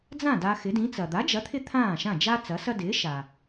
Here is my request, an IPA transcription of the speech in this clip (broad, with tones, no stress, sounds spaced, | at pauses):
d͡z ã˥˩ d a˧ x ɪ˩˥ d ĩ˩˥ t͡s ɐ˩ d̪ a˩˥ d͡ʒ ɐ˩˥ t̪ʰ ɪ˥ t̪ʰ ãː˥˩ ʃ ã˥˩ d͡ʒ a˥ t͡s ɐ˩˥ s ɐ˥ d ɪː˩˥ ʃ a˩